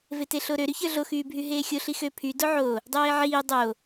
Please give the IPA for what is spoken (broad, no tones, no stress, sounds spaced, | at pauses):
v e t e ɬ o ɾ ø ɾ y ç ə˞ ɮ o x yː bʱ y ɦ eː xʲ o ɬ i x ø pʰ y d o ʕ o | dˤ eː ʕ iː dˤ o